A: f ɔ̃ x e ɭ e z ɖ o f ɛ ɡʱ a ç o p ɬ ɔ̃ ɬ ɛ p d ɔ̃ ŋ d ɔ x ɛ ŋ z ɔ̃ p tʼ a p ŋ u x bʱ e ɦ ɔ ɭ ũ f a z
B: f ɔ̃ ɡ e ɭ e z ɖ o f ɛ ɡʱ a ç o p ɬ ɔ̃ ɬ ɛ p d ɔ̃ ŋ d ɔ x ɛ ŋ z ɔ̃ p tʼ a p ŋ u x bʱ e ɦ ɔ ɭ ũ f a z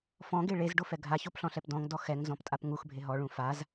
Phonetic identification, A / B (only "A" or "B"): B